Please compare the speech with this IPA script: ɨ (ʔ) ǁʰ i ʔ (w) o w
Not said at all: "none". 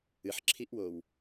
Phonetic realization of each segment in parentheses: ħ, w

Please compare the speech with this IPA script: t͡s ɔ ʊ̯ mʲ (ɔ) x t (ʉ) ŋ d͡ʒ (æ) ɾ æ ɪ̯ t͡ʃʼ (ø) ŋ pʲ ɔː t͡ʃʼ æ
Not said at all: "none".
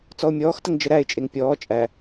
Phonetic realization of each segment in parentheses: ɔː, ə, ə, e

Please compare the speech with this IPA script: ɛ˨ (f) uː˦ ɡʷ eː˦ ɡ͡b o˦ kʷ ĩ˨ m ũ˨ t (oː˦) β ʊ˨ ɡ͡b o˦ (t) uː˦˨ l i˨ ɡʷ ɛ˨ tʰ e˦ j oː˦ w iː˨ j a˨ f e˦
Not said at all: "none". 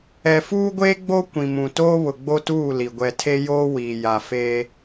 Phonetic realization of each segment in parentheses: f, oː˦, t

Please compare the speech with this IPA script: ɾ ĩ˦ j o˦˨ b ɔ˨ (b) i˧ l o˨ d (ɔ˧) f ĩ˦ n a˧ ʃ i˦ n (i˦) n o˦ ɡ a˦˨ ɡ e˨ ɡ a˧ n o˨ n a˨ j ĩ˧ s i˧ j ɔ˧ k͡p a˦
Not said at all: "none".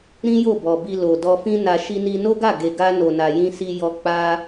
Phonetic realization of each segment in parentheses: b, ɔ˧, i˦

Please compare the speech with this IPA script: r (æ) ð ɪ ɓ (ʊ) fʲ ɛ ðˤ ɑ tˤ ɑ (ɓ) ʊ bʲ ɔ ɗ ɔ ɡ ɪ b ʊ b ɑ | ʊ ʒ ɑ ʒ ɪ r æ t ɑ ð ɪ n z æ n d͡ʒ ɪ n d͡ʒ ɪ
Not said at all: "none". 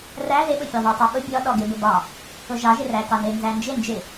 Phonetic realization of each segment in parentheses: æ, ʊ, ɓ

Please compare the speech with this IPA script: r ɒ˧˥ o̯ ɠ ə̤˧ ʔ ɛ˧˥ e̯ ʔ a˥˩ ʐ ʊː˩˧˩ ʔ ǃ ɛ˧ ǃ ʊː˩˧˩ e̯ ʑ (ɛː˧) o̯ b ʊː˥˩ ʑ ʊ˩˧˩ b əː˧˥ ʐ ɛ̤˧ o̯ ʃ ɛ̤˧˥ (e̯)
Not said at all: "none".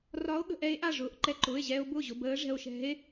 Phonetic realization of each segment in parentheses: ɛː˧, e̯

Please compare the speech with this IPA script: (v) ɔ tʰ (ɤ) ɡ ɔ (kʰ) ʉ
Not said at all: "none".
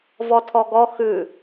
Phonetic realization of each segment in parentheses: v, ɔ, x

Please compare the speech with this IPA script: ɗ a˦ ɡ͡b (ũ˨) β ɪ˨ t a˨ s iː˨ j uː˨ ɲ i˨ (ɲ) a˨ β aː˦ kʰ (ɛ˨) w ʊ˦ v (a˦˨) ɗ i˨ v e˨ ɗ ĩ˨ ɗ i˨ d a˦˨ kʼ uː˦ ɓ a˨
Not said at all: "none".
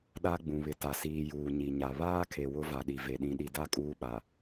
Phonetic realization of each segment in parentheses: ũ˨, ɲ, e˨, a˨

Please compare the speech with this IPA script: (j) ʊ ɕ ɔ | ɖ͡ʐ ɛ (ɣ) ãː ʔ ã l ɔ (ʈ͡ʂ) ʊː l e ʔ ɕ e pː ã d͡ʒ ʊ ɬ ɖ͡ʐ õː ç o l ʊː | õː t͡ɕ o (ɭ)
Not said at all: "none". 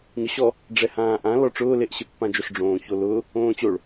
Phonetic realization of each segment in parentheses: ɲ, h, ʈ͡ʂ, ɭ

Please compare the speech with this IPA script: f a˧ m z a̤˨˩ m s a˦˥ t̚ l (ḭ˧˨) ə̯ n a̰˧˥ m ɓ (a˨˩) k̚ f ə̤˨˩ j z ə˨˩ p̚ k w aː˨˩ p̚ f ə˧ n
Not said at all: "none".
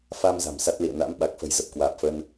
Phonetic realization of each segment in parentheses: ḭ˧˨, a˨˩

